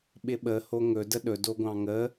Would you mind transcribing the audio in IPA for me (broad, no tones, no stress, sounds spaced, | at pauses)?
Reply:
ɓ ɪ ɓ ə h o ŋ ɵ d ə ɗ ɵ d o ɡʷ ɑ̃ ŋ ə